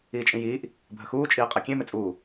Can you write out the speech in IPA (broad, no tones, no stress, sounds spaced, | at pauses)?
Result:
iː t͡ʃʼ ĩ j iː ʔ | bʱ ə x uː t͡ʃʼ iː qʼ ɛ kʲ ẽ m e t͡sʼ uː